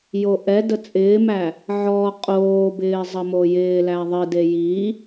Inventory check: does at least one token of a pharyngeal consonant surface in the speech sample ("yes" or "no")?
yes